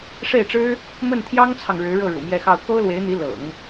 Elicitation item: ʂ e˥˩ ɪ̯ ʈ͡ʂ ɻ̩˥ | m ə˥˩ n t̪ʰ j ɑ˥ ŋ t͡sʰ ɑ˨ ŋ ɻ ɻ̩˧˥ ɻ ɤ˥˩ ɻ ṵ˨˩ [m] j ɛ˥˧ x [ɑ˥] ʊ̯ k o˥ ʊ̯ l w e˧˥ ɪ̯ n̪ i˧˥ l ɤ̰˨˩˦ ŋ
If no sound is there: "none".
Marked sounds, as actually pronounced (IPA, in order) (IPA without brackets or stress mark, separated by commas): m, ɑ˥˩